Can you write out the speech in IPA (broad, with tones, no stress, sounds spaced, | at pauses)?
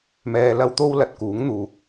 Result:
m ɛː˧ l ɐ˥ w t̪ o˥ w l ɐ˨ t̚ k uː˨˥ ŋ n̪ uː˨ k̚